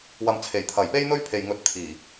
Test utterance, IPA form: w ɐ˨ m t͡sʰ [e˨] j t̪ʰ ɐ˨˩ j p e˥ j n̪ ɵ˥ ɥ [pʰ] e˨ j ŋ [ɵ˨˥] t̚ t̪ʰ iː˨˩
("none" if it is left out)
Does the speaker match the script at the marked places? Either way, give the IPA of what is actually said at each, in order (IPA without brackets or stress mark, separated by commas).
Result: e˨˩, pʰ, ɵ˨˥